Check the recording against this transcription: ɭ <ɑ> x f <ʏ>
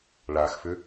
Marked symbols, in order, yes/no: no, yes

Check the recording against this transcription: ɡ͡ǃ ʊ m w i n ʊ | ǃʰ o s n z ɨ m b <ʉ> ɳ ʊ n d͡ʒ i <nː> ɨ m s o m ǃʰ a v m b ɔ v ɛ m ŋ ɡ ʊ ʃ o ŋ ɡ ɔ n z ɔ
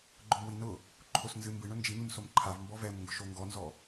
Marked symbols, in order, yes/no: no, no

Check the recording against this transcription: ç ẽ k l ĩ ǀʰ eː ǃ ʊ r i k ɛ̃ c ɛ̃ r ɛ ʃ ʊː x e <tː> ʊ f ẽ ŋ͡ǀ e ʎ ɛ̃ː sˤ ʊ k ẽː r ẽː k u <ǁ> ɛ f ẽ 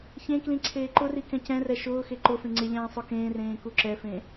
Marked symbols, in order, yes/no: no, yes

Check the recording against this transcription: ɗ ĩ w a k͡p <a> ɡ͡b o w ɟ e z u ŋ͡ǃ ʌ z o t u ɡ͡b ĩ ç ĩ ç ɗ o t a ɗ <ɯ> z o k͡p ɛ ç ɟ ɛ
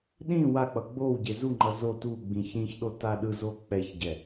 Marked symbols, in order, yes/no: no, yes

